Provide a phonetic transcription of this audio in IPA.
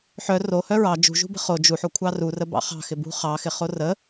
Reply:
ħ œ r o h œ ɹ ɑ d͡ʒ ṳ ʒ ṳ b ə̤ χ o d͡ʒ u ħ o kʷʰ ɑ r u r ə b ɑ̰ χ ɑ̤ x ɪ b ṳ χ ɑ x ɪ χ o r ə

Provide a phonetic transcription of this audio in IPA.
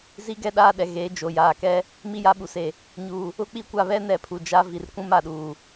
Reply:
z i˦ ɡ ɛ˦ ɗ aː˦ ɗ ɛ˨ ɣ e˨˦ d͡ʒ o˨ j aː˨ k ɛ˦ | m i˦ j a˦ ɓ u˨ s e˨ | ɲ uː˨ | ʊ˦ k͡p i˦ kʷ a˦˨ β ɛ˦ n ɛ˨ pʰ u˨ d͡ʒ a˦ v i˨ r kʷ ũ˦ m a˨ ɗ uː˨

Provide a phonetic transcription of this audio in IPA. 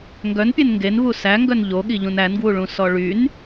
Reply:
ŋ ɡ œ n pʲ e n ŋ ɡ e n v u s æ ŋ ɡ œ n ʎ o ɠ i ʎ ũ n æ n ɡ w u ɭ ũ s ɔ ɭ y n

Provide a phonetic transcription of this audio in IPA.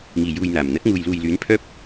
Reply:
ŋ iː˨˩ j uː˧ j n̪ aː˨˩ m n̪ ɐ˨˥ t̚ ŋ uː˨ j l uː˨ j l yː˨˥ n pʰ œː˥ p̚

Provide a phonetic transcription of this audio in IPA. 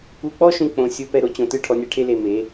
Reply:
u˧ k͡p ɔ˦ ʃ ũ˧ k͡p õ˧ sʲ o˦ p ɛ˦ ɾ o˧ t͡ɕ õ˧ t ɯ˦ ʈʰ ɔ˧ nʲ ɛ˧ ʈʰ e˦ l e˧ m e˨˦

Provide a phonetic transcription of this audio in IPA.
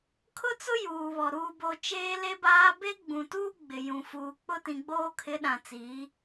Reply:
kʰ ʊ˦ t͡s ʊ˦ j uː˨ β ɔ˨ ɾ uː˨ b o˨ t͡ʃ eː˦ l e˦ b aː˦ b e˦ ɡ͡b ũ˨ t uː˦ ɡ͡b ɪ˨ j ũ˨ f uː˨ k͡p ʊ˦ t ĩ˨ ɡ͡b oː˦ kʰ ɪ˨˦ ɗ ã˨ t͡s iː˨˦

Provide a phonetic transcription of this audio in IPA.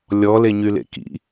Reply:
lʲ ɔ l e ɲ y l ḛ k ḭ

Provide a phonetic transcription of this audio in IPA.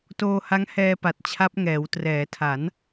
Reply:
t oː˧ h a˦˥ ŋ h ɛː˧ p a˨˩ t̚ t͡ɕʰ a˦˥ p̚ ŋ ɛː˩˦ w t r ɛː˩˦ tʰ a˩˦ n

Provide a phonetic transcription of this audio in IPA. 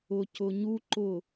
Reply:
ʊ˨ c ʊ˨ ɲ u˦ ǃ ʊ˦˨

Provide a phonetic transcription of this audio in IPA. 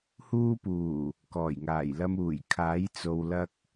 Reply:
h uː˧ p uː˨˩ | k ɔː˨˩ j ŋ aː˨˩ j l ɐ˧ m uː˨˩ j kʰ aː˨˥ j t͡s o˨ w l ɐ˧ k̚

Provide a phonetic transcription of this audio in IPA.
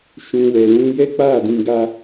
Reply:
ʃ ũ˨ w ɛ˨ l ũ˧ j ɛ˦ k͡p a˦˨ d ĩ˧ ɡ a˦

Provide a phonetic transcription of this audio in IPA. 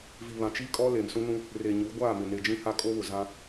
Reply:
v i˨ β ã˨ t͡ʃ i˦ kʼ ɔ˦ l eː˨ m s ũ˦ n ũ˦ | r e˨ ɲ u˨˦ ɡʷ aː˦˨ m ɪ˨ n e˨ d͡ʒ ĩ˦ h a˦ kʼ o˦ β ʊ˨ z ã˦

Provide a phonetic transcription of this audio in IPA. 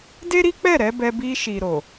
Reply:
d e˦ ɾ i˦ k͡p ɛ˦˨ ɾ ɛ˨˦ b ɛ˧ b i˧ ʃ i˨ ɾ o˨

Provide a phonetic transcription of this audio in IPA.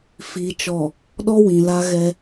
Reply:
f iː˨ t͡ʃ ɔ˨ | ɗ ɔ˦ w ĩ˨ l a˦ ɣ ɛ˦

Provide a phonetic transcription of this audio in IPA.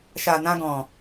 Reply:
ʃ a˨ n ã˧ ɡ ɔ̃˨

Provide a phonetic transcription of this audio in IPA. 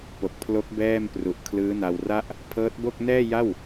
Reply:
p o˨˩ k̚ pʰ l o˦˥ k̚ b ɛː˥˩ m p r u˨˩ ʔ kʰ l ɯː˦˥ n a˧ w r a˥˩ ʔ | pʰ ɤː˦˥ t̚ b o˥˩ k̚ n ɛː˥˩ j a˥˩ w

